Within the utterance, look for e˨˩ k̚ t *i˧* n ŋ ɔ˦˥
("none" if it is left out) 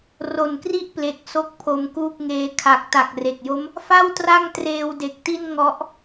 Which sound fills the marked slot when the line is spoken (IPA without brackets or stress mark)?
i˥˩